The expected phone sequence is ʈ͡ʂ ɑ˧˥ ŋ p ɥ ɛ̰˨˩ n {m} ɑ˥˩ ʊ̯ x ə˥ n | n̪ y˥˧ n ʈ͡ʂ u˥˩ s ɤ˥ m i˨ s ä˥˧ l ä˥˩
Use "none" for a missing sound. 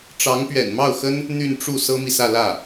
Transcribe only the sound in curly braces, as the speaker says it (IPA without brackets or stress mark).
m